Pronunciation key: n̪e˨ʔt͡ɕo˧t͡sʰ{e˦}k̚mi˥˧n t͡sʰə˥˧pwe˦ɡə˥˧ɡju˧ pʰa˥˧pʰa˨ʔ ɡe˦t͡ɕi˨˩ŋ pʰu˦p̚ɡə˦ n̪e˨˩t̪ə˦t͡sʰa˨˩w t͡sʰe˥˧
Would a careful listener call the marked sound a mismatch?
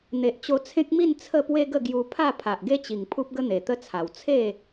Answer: yes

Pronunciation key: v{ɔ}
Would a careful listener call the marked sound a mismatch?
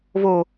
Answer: yes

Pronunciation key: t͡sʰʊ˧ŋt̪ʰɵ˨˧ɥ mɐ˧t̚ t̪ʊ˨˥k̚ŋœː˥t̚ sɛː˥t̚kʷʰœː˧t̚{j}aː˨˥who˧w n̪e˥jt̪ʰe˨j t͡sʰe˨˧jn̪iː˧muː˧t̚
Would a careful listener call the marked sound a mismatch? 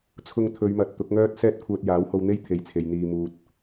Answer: no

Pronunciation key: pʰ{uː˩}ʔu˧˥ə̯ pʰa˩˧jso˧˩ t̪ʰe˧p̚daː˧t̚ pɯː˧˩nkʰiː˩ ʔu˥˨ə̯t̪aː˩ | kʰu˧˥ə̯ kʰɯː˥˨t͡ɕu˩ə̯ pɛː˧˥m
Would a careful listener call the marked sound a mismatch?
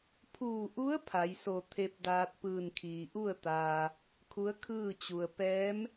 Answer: yes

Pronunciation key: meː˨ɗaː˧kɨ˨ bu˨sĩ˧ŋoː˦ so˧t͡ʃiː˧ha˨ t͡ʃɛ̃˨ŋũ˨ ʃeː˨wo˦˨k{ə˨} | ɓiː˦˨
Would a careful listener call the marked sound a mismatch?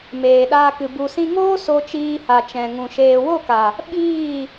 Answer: yes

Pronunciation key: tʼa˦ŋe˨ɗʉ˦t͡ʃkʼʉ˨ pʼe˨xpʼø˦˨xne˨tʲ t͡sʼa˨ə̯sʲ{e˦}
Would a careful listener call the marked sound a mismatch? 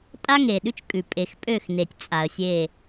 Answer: yes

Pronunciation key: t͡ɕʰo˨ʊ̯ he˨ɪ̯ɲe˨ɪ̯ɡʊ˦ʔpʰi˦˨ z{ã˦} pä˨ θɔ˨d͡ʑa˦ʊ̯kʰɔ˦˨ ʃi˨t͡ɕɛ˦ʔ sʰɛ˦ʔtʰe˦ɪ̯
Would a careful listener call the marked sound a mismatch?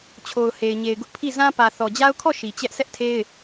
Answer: no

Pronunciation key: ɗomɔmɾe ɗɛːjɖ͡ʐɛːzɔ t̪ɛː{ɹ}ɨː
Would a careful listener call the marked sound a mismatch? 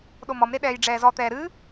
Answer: yes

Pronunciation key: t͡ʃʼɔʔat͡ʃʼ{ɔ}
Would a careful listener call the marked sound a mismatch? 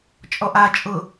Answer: yes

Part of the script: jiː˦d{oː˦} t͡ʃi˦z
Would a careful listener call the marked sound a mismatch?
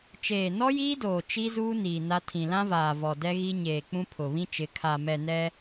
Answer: yes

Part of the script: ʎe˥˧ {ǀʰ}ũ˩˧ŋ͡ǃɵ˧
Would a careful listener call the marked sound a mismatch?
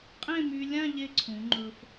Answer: no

